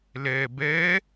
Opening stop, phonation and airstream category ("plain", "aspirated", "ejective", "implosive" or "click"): plain